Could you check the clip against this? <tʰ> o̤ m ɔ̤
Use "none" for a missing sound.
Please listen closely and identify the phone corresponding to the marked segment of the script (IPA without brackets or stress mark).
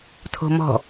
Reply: tʰ